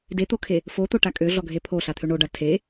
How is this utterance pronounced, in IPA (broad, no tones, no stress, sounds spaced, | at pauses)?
d e t̪ o kʰ e | f o t̪ o ʈ a kʼ ø ɮ ɔ ɡʱ e pʰ o ɬ a t̪ʰ ø ɳ o ɖ a tʰ e